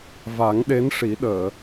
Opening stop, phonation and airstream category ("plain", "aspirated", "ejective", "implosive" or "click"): implosive